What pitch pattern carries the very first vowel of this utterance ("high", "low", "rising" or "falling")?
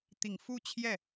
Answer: low